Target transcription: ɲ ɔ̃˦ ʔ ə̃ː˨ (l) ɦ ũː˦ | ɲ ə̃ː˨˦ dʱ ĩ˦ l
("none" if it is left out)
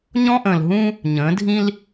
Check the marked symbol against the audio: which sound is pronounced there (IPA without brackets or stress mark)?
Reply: l